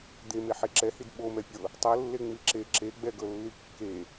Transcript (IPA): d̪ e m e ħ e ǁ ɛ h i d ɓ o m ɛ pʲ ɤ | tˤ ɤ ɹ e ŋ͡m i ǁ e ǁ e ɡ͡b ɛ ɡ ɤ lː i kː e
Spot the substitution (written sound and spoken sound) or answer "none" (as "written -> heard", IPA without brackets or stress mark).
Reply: ɹ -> lː